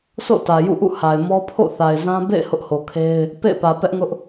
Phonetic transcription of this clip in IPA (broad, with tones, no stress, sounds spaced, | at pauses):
sʰ o̰˦˨ t ä˨ j ṵ˦˨ ʔ ṵ˦˨ h a˨ ɪ̯ m ɔ˦ pʰ o̰˦˨ θ a˨ ɪ̯ z ã˦ b ḛ˦˨ ɪ̯ h ʊ˦ ʔ h o˨ kʰ e˦ ɪ̯ | p ḛ˦˨ ɪ̯ p ä˨ p ɛ˦ ʔ ŋ ʊ˦ ʔ